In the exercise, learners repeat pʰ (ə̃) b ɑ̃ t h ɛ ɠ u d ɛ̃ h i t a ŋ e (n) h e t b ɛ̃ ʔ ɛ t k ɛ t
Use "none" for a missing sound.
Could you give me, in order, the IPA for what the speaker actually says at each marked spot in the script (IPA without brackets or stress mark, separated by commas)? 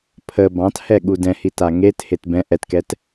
ə, t